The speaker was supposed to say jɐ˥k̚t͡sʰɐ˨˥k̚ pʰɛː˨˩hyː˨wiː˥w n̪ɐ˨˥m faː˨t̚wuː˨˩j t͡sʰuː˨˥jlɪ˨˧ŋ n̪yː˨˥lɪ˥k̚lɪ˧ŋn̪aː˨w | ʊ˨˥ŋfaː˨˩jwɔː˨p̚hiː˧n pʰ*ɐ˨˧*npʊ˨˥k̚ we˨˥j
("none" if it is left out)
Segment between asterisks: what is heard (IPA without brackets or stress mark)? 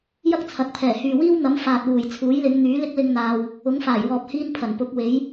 ɐ˨˩